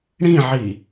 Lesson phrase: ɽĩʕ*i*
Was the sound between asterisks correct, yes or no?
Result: yes